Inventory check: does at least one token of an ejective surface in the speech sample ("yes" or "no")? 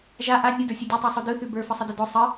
no